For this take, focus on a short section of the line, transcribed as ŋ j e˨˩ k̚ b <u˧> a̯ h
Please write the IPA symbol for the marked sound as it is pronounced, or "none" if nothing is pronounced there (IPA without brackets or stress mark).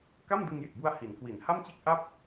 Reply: u˧